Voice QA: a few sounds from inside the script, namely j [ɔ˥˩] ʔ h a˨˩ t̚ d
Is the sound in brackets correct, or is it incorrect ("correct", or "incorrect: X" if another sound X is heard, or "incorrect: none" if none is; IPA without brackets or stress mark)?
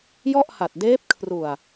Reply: correct